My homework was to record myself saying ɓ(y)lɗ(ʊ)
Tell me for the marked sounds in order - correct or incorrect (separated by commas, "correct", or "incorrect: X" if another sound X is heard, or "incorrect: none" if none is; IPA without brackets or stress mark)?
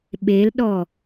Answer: incorrect: e, incorrect: ɔ